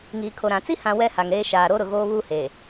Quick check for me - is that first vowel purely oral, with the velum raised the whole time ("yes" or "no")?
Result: yes